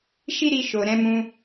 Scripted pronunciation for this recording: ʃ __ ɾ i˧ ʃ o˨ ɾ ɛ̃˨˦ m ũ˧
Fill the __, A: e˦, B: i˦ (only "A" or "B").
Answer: B